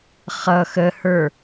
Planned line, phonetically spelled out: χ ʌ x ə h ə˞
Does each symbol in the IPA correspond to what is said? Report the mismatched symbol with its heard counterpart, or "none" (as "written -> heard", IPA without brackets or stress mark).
none